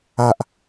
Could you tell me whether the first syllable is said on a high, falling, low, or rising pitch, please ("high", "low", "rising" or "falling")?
low